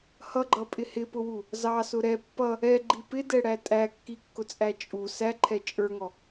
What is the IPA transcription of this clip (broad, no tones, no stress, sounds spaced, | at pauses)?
h ʌ ɡ͡ǃ ʌ pʼ ɪ h ɪ p ʊ w u | z ɑ s ʊ ɾ ɛ pː ʌ | ɛ ɡ͡ǃ i p ɪ d ɛ ɽ æ tʼ æ kː i kː ʊ t͡sʼ æ t͡ʃʼ u s æ ǃʰ ɛ t͡ʃʼ ə˞ ŋ ɔ